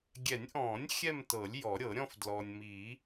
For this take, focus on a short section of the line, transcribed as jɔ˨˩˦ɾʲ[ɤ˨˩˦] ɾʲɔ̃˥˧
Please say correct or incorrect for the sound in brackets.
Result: correct